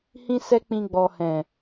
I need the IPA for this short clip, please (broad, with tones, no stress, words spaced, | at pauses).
hĩ˦sɛ˦k͡pĩ˧ ɡ͡bɔ˨ hɛ̃˨